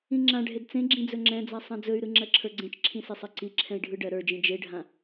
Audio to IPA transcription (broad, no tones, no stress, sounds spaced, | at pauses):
ĩ ŋ͡ǁ ã ɖʱ e d t͡s ẽ ɡ͡ǁ ĩ d͡z ɵ ŋ͡ǁ ɛ̃ d͡z a sˤ ã d͡z ɵ y̯ ɾ ɯ ŋ͡ǁ ɜ ǁʰ ə˞ ɡ͡ǀ ẽ t͡ʃ ǁʰ ĩ s e sˤ ɜ ǀ i ǁʰ ɛ̃ i̯ ɖʱ ɯ ɖ ɜ ɾ ə˞ d͡ʒ ĩ d͡ʒ e ɖʱ ã